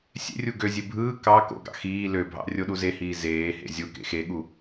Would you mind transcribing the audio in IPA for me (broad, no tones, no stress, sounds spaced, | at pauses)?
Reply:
sʲ ḛ rʲ u ɡ ø zʲ e bʱ ɯː k ɑ k o̰ ɡ ɑ̰ x iː l ø bʱ ɑ̰ rʲ o ɗ u z e h iː z eː h ḛ zʲ u k ḛ x e ɠ u